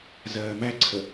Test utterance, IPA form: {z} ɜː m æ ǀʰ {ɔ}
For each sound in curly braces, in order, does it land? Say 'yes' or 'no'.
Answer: yes, no

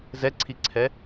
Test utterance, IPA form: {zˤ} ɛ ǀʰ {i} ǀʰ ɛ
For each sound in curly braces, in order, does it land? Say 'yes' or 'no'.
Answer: no, yes

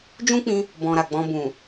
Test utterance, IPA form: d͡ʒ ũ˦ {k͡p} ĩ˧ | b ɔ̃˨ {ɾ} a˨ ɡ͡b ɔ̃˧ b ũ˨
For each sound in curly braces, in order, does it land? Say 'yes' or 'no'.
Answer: yes, yes

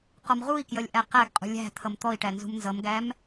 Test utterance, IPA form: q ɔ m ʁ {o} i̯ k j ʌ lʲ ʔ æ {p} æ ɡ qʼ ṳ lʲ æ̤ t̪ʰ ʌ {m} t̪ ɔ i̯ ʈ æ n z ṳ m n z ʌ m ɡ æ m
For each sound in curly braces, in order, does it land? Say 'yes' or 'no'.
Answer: no, no, yes

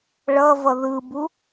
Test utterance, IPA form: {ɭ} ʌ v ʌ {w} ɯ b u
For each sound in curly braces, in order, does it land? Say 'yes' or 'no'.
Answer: yes, no

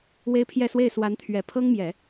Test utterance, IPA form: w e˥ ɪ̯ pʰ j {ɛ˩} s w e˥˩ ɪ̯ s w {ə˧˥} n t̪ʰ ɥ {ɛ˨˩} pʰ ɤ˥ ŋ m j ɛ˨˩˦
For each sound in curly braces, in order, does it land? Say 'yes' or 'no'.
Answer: no, no, yes

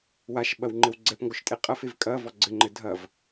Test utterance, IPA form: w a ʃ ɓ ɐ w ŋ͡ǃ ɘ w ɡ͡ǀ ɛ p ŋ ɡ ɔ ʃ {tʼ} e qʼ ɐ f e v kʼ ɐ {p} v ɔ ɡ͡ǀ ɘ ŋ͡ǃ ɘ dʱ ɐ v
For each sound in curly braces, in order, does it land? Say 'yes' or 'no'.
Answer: yes, no

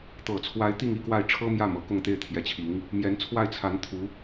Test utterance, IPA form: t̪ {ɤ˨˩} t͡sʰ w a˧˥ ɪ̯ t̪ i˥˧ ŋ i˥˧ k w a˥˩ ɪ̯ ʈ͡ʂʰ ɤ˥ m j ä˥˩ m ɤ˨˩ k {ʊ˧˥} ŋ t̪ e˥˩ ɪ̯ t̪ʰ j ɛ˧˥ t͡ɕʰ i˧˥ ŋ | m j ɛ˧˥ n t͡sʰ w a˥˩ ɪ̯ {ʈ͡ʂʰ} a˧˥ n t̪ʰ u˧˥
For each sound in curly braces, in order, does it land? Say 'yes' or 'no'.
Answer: yes, no, no

